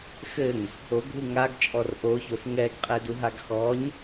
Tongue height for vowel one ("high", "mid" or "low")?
mid